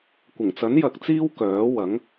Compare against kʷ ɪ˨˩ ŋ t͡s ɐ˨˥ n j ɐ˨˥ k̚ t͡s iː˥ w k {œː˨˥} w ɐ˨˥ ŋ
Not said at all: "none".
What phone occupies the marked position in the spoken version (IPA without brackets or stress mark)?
œː˨˥